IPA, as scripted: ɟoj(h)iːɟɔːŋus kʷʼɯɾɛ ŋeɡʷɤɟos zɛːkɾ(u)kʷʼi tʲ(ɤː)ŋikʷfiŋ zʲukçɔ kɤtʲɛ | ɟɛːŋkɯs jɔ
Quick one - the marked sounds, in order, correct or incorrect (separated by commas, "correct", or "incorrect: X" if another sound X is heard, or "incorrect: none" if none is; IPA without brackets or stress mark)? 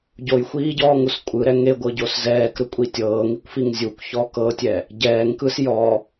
incorrect: xʷ, incorrect: ɯ, correct